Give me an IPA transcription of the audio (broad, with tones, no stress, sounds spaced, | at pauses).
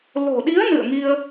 l o̤˨˩ ɗ i˨˦ ə̯ n ɨ̰˧˨ ə̯ ŋ i˧ ə̯